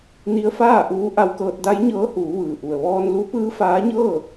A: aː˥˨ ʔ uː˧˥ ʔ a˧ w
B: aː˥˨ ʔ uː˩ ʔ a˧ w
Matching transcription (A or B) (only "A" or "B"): A